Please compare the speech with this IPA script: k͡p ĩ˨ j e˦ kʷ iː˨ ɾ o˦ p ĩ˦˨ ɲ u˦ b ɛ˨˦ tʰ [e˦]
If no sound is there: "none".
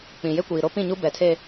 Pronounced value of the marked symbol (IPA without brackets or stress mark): e˦